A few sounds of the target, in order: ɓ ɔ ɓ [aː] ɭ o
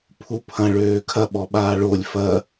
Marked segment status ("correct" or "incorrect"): correct